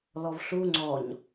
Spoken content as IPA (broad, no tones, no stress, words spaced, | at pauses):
lɔvɬu ŋ͡ǀɔɲ